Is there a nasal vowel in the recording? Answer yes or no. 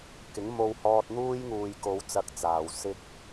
no